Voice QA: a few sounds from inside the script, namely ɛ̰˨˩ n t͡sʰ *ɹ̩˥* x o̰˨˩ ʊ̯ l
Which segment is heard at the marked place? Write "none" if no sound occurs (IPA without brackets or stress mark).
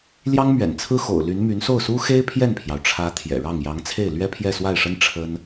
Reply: ɹ̩˥